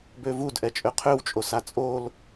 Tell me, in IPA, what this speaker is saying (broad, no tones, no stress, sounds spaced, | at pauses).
b ø v u d ʔ ɛ t͡ʃʼ ø qʰ ø w t͡ʃʼ o s a t͡sʼ o l